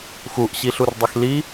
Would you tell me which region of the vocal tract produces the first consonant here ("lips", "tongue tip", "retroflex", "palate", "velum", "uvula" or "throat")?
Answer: velum